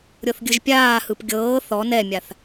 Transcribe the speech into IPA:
ɾʲɤθɡʲɯʒpʲaːhɯp ɡʲɤː θɔ nɛmʲaθ

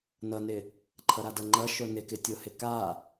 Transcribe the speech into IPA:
nʌnɪ | ǃʰʌɾadʌŋ͡ǃʌ ʃonɪkɪ tʲohɪka

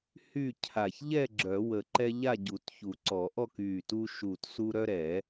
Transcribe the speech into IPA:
hy˥˨ cʰa˧˩ç ʎɛ˥˨ɡ͡ǁœ˨˩˦ wə˧˩ǃɛ˦ʎa˥˨ ɟu˨˩˦tçu˨˩˦ǀɔ˨˩˦ʔɔ˥˨k y˧˩tu˦ʃu˧˩tsu˦ ɾœ˦ɾɛ˨˩˦

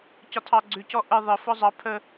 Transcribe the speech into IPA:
cɒtʰɑɡ͡ǀʉcɔ ʔə ðˤə fɔzˤɑ pʰə

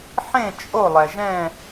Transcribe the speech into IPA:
ħẽ˥˨ t͡ʃʼo˥˨ lˠɛ˩ʒɛ̃˥˨

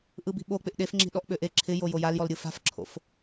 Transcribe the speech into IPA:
ʔɯbi̤ɓo k͡pɪʔɗefŋ͡ǁi̤ɗɔʔ ɓøʔe ǁʰɪjo jojaljɔlɾʲɯ fa̤fǁʰo̰f

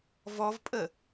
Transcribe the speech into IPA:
vɔvpʼə

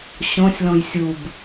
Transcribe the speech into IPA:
ɕõsʲlõj sʲub

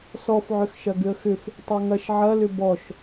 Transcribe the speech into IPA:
sɔfʕʏxʃɐ ɡʏə̯xʏf | tˤeŋɐʃ ʕɐlʏ bɔʃ

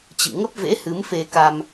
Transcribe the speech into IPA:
t͡ɕɨ̰˧˨ŋə˦˥p̚vḛ˧˥hɨ˨˦m fe˧ka˧m

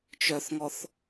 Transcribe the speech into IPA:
t͡ʃœθŋɔθ

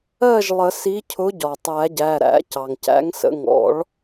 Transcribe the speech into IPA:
ɜ˥˨ʒlˠə˨˩˦si˨˥cʰʊ˨˥ ɟɒ˩tˤæ˨˩˦ɟæ˩˧˩ ɾæ̰˨˩˦ cɑ˩ŋcæ̰˨˥ŋ sə̰˩˧˩ŋɔ̰˨˩˦ɭ

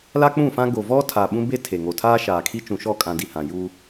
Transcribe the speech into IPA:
la˦k͡pũ˦˨fã˦ ɡo˨vɔ˦ tʰaː˨ ɓũ˦be˦ tʰe˨ŋo˨ tʰaː˦ʃaː˨kʰi˦ t͡ʃũ˨ʃɔ˦˨kʼã˨ di˨hã˨ ju˦

